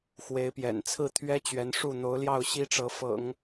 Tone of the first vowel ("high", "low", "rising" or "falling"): rising